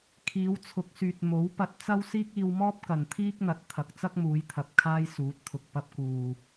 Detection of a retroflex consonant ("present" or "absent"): absent